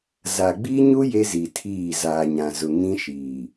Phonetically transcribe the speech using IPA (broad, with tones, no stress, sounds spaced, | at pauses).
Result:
z a˨ ɡ͡b i˦ ɲ u˦ j e˦ z i˨ tʰ iː˦˨ z aː˨ ɲ ã˨ z ʊ˨ ŋ ĩ˦ ʃ iː˨